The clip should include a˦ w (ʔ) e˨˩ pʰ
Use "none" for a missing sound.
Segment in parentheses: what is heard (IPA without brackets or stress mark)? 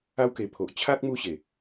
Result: k